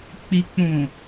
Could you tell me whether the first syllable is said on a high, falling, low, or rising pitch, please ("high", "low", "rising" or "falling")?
low